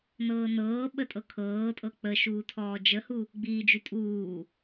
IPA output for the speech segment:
nɤːnɤːɓə tʼɤkʰɤːtʼɤ k͡pəʃuː tʰɔːd͡ʒəhu | ɡ͡biːd͡ʒy tʼuː

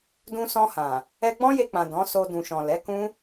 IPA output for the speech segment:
dũ˧ sɔ̃˧hã˨ | ɛ˧ɡ͡bɔ̃˦je˧k͡pã˨ dɔ̃˨˦so˧ dũ˨ʃɔ̃˨ lɛ˨˦kũ˦

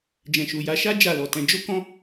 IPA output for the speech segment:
d͡ʒɛ̃˨ʃu˨ja˨˦ʃa˦ d͡ʒa˦˨lɔ˨tɛ̃˨˦ d͡ʒo˦kɔ̃˦

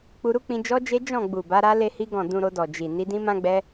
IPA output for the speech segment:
k͡pu˧ɾu˦k͡pĩ˧ d͡ʒɔ˦d͡ʒe˦ d͡ʒɔ̃˦˨ɡ͡bu˨ba˨˦ɾa˦ le˦hi˦ɡɔ̃˦˨ dũ˧ɾo˧dɔ˨ d͡ʒi˨ ni˧dĩ˦mã˦ɡ͡bɛ˦

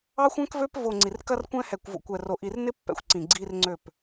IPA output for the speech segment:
ɑ˦xʷɛ̃˦kvø˦p vo˨ ŋ͡ǀi˨rkɐ˦rkʷɛ̃˦ hɛ˨kʷvo̰˨kʷɛ˨ro˨ ʔi˨rnɪ˦ pːɛ̰˨xʷǀĩ˨ ɡ͡ǀi˦rŋ͡ǀø˦˨p

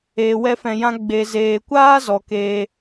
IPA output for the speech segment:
eː˨wɛ˧fɛ̃˨jã˧ ɡ͡be˨zeː˨kʷaː˦ zɔ˨keː˧

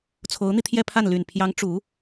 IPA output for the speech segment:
t͡sʰo˧˥ʊ̯n̪i˧t̪ʰjɛ˥˧pʰa˥˩n ly˨˩npʰjɑ˧˥ŋ ʈ͡ʂu˧˥

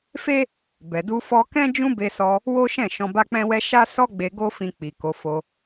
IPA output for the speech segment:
fe˦ | bɛ˨du˧fɔ˧kɛ̃˦ d͡ʒũ˦be˧sɔ˧ | wo˦ʃɛ̃˦˨ ʃɔ̃˧ba˦k͡pɛ̃˦wɛ˦ ʃa˦ sɔ˦ɡ͡be˧ ɡo˦fĩ˧ k͡pi˨ ko˨˦fo˧

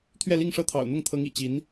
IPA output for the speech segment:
t̪ʰɥɛ˥˧li˥˧ŋʂɤ˥˩t̪ʰɑ̰˨˩ʊ̯ n̪ʊ˥˩ŋt̪ʰɤ˧˥ŋḭ˨˩ t͡ɕi˧˥n

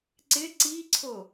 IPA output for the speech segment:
ǀɪ ǀiǀʰo

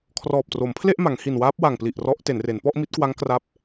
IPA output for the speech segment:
kʰrɔː˨˩p̚tro˩˦mpʰle˥˩ʔma˩˦ŋ hi˨˩nwaː˦˥p̚wa˨˩ŋpli˨˩ʔ rɔ˦˥ʔte˩˦nre˩˦n pɔ˥˩ʔmi˦˥t̚kwa˦˥ŋ kra˦˥p̚

